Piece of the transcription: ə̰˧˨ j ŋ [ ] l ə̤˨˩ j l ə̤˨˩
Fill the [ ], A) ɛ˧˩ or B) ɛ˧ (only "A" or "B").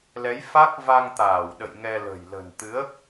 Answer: B